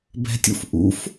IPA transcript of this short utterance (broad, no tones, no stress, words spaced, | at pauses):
bɛ̤tʲṵf ʔṵf